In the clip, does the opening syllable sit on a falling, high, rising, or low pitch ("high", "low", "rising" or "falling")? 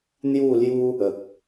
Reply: falling